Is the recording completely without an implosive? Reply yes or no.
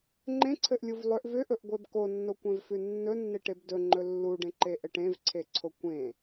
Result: yes